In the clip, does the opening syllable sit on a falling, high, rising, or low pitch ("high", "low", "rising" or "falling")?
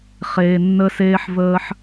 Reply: low